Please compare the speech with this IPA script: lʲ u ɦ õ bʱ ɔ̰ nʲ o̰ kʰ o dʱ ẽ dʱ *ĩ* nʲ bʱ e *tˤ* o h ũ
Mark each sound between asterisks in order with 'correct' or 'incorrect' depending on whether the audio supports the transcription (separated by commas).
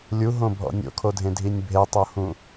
incorrect, correct